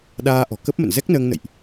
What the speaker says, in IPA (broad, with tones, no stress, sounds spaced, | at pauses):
ɗ aː˧ ʔ ɔ̤˨˩ k ə˦˥ p̚ m ə̰˧˨ n z ɛ˦˥ k̚ n əː˧ ŋ n ə̰˧˨ j ʔ